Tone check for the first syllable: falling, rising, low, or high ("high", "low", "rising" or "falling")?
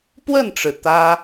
falling